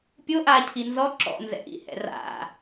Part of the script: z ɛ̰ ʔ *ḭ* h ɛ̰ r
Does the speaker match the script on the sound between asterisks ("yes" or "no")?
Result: yes